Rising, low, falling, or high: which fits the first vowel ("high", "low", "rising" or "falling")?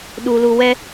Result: low